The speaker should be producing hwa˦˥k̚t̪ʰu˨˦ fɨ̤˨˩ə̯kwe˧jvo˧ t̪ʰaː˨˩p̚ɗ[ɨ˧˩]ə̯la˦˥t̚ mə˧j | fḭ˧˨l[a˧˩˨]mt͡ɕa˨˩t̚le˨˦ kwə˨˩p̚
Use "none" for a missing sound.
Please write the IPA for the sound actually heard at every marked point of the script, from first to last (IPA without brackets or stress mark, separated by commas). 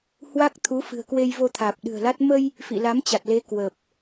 ɨ̤˨˩, a˨˦